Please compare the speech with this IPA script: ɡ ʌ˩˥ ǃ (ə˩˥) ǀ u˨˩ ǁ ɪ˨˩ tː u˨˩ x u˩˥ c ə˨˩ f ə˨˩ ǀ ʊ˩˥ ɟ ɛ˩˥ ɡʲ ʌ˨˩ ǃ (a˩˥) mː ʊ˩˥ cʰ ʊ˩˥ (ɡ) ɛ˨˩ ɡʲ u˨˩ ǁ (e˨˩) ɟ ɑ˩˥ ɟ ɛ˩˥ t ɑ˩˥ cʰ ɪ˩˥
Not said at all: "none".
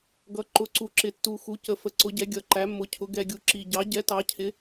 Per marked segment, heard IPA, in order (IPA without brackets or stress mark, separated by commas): ʊ˩˥, æ˩˥, ɡ, i˨˩